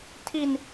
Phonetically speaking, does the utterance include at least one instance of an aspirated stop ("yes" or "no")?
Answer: yes